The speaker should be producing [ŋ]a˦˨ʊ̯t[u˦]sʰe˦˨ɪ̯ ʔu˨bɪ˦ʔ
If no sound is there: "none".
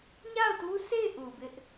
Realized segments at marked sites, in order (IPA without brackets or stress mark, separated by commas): ɲ, u˦